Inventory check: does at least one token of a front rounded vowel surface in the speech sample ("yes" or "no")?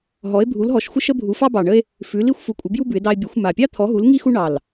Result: no